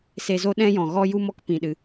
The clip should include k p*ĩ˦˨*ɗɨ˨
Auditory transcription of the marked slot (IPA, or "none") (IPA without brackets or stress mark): ĩ˨